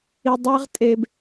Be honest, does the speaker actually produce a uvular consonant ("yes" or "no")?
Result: yes